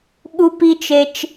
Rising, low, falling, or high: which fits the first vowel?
high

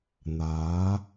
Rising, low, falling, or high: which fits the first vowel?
rising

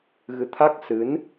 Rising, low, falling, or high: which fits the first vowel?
rising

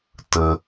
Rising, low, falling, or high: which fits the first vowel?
low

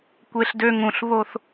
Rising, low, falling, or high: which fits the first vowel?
high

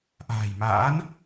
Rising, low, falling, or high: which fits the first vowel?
low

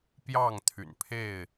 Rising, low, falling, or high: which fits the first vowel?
falling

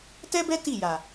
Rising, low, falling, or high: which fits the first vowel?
high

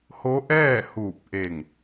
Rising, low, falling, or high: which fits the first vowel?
rising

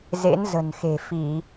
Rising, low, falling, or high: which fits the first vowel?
rising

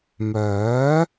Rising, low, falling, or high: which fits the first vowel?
rising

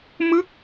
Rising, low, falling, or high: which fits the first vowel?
falling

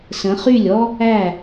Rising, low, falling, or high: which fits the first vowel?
rising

